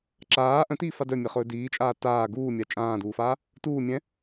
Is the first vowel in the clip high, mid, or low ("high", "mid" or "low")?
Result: low